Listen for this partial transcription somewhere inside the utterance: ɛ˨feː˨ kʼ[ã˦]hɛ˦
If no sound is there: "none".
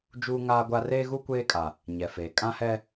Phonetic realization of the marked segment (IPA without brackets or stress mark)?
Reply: ã˦